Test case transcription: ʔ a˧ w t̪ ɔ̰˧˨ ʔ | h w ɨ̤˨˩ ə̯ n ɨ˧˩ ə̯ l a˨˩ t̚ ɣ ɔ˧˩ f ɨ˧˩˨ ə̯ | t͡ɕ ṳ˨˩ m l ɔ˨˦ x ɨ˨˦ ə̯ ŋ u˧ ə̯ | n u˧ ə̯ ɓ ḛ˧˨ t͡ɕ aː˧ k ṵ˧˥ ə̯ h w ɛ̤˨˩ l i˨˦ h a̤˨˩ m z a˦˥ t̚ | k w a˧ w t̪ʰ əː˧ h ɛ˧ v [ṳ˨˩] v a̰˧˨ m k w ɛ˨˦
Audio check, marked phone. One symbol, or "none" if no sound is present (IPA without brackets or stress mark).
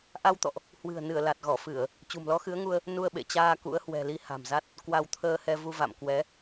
u˧